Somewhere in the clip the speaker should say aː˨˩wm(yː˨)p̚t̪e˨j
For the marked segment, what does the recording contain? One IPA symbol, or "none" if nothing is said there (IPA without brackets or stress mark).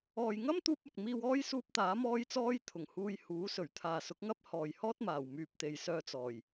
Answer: yː˨